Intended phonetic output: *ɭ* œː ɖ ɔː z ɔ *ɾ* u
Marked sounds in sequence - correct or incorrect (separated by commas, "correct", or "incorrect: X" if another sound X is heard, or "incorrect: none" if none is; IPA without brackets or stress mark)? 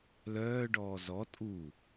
incorrect: l, incorrect: tʼ